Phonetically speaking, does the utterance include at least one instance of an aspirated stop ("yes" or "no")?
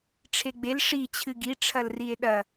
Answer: yes